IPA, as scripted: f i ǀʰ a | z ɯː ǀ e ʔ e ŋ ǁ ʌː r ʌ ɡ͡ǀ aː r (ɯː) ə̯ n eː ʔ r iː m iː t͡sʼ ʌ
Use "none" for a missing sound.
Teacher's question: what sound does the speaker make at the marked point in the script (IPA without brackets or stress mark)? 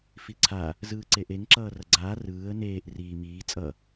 ɯː